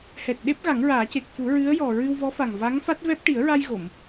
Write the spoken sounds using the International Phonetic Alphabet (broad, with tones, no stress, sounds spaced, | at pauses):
h ɛ˨˩ t̚ ɗ e˦˥ p̚ ɣ a˨˩˦ ŋ ɹ aː˨˩˦ c e˨˩ k̚ f u˨˩˦ ɹ ɨ˧˥ ə̯ j ɔ˨˩ ɹ ɨ˧ w v ɔ˧˥ f a˨˩ ŋ v a˧˥ ŋ f a˦˥ t̚ v ɛ˦˥ p̚ ʈ i˨˩˦ ə̯ ɹ a˧ j ɣ o˨˩˨ m